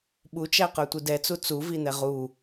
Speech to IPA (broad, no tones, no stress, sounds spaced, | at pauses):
ɓ u t͡ʃ æ q ə˞ tʷ i d ɛ t͡s u t͡s u v i n̪ ɛ ʁ u